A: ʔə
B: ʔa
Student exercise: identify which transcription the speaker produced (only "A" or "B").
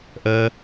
A